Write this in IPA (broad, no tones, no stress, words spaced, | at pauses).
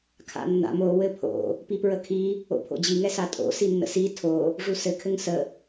kʰa̰nːa̰m o wɘpʰo̰ | pipɹəkʰi | o̰pʰo̰d͡ʑi ŋɛsatʼo̰ sinːə̰si tʰo | ʐusɘ kʰɘŋsə